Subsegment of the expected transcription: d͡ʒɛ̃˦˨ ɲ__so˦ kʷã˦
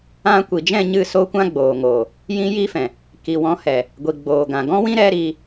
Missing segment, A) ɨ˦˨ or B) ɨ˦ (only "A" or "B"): A